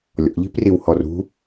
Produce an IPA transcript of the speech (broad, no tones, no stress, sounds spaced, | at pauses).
lʲ ɔ̰ ʎ i̤ p r i w h ɔ r ṳ